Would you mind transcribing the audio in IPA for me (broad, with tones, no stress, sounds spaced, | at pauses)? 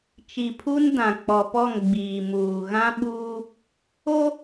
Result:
t͡ʃ i˨ pʰ u˦ n d ã˨ k͡p ɔ˨ p ɔ˦˨ ŋ ɡ͡b iː˨ m uː˨ ɣ ã˦ ɓ uː˦ | o˦